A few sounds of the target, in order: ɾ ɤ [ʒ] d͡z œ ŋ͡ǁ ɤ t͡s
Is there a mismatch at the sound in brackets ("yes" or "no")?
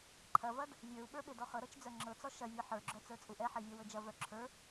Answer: yes